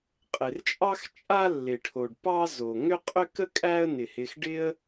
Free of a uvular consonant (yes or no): no